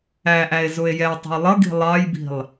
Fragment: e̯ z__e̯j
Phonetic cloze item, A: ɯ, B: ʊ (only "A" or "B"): B